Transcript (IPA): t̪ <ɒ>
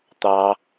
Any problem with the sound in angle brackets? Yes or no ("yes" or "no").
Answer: yes